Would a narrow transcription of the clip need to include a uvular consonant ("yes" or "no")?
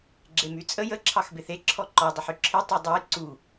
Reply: no